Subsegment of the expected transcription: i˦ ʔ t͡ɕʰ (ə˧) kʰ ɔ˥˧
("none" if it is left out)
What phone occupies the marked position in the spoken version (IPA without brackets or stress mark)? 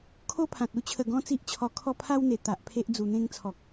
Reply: ɔ˧